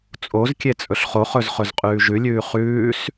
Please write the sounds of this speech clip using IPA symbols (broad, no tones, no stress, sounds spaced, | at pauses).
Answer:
t͡sʼ o z kʲ e t͡sʼ ɵ ɬ χ o χ ɵ z χ ɵ z qʼ ʉː ʒ ʉ lʲ ʉː χ ʉː s